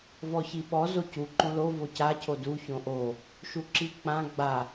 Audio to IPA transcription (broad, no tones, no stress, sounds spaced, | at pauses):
v ɔ ç i ɓ ɔ z o c u ǃ õ l o v o c a cʰ o d u ç õ ʔ o | ʃ u ǁ i k͡p ã ɡ͡b a